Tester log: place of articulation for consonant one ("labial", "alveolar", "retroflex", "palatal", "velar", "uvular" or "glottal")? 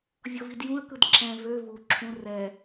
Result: labial